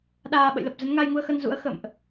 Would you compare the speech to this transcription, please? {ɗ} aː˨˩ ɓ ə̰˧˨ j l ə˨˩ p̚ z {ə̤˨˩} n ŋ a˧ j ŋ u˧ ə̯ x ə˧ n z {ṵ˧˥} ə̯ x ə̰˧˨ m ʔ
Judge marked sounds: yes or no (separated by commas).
yes, no, yes